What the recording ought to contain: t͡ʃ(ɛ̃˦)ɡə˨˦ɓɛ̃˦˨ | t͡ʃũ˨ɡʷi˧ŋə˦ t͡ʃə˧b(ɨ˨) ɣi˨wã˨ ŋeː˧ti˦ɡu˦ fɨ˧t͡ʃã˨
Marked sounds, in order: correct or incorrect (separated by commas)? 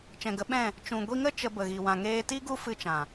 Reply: incorrect, incorrect